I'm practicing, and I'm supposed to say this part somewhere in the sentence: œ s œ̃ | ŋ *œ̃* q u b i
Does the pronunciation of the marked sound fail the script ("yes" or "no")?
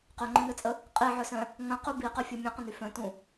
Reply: yes